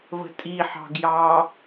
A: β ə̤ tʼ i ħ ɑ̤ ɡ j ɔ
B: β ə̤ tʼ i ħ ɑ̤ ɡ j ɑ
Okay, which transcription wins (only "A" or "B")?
B